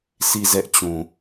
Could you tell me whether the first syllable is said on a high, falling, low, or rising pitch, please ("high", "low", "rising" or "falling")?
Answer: falling